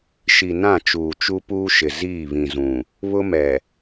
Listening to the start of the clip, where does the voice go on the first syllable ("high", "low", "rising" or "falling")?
low